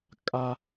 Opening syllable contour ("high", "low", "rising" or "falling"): high